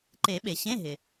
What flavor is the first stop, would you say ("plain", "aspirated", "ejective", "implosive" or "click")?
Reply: click